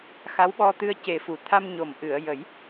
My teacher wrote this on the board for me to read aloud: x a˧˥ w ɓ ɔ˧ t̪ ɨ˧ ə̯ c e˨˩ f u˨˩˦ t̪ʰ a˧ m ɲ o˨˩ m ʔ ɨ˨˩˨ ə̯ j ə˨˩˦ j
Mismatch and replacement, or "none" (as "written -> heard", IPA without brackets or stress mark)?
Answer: none